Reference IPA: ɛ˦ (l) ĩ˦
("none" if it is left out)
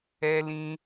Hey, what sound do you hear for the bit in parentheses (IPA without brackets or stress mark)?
l